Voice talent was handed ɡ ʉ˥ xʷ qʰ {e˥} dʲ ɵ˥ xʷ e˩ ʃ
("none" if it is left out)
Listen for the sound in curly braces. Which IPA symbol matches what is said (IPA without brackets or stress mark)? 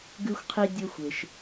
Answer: i˥